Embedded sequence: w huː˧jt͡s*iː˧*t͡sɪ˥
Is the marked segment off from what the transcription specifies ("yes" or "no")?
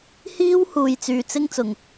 yes